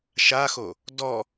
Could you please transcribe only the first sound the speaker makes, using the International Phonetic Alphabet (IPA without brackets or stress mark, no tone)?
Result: ʃ